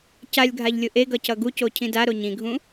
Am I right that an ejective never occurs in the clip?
yes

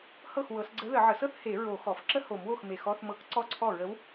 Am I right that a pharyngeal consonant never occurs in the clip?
no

